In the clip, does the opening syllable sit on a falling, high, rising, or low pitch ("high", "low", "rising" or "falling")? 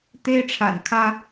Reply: high